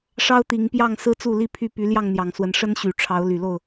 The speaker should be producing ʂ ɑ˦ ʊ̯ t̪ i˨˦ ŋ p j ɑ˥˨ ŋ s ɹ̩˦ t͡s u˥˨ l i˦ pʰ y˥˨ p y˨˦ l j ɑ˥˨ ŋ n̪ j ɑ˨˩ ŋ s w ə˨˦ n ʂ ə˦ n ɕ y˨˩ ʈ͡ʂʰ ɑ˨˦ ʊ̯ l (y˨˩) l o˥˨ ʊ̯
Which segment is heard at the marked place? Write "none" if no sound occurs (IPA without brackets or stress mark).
y˨˩